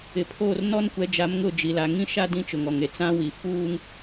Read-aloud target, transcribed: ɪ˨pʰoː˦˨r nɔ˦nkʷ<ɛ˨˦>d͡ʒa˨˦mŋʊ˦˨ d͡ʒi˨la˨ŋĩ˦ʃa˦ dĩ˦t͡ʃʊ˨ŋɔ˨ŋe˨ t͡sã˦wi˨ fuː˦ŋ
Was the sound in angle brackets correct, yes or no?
yes